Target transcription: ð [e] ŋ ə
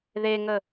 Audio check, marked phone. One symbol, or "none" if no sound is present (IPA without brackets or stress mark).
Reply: e